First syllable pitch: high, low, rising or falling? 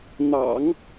low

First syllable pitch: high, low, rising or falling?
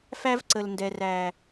high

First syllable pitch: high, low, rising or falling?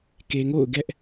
low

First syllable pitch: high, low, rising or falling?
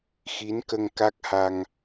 rising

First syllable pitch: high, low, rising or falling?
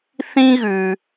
high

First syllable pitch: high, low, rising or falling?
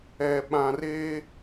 low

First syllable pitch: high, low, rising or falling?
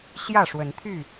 falling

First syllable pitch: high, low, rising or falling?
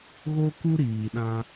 high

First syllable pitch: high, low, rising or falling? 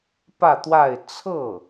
falling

